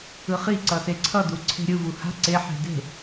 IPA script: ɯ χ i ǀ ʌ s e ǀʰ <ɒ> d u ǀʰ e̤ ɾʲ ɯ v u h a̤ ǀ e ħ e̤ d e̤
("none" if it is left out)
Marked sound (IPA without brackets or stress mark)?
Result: ʌ